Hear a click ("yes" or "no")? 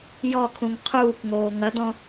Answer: no